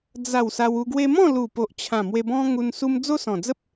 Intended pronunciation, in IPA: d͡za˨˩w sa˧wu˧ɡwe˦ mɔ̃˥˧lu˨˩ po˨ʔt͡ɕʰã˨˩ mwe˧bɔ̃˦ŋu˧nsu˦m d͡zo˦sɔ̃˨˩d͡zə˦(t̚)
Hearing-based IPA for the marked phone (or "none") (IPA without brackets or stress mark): p̚